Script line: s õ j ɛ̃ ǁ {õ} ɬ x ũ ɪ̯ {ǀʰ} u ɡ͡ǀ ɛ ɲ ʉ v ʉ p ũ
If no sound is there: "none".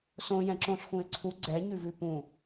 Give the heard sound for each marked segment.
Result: õ, ǀʰ

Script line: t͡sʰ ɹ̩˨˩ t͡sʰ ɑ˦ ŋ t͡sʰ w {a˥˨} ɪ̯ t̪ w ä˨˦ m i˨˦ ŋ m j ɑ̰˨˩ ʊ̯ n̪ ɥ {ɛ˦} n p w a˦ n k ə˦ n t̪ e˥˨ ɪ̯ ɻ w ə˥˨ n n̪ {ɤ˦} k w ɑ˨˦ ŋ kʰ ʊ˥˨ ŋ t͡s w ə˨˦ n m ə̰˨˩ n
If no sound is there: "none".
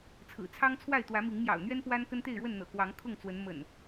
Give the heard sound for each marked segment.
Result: a˥˨, ɛ˦, ɤ̰˨˩

